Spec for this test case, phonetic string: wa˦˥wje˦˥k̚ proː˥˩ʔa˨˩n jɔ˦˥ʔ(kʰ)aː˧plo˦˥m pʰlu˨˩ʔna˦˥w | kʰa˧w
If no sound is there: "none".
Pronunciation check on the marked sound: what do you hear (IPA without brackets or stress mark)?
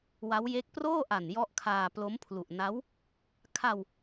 kʰ